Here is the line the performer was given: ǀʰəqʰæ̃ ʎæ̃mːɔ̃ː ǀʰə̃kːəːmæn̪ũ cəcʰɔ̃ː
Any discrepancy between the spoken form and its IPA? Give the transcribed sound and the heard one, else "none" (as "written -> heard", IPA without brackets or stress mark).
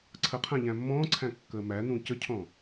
ə̃ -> æ̃